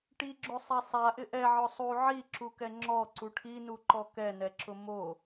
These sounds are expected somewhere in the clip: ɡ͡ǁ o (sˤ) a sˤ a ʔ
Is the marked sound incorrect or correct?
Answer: correct